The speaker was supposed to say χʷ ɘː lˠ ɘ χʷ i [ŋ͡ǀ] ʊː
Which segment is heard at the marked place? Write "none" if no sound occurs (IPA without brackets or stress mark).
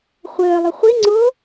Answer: ŋ͡ǀ